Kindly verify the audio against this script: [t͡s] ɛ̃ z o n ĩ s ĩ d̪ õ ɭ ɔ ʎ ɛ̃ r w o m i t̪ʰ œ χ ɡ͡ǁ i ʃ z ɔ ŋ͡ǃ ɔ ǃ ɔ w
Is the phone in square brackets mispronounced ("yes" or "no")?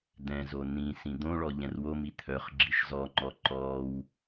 yes